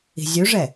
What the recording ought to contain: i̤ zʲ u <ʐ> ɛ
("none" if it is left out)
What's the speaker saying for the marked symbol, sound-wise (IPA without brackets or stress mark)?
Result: ʐ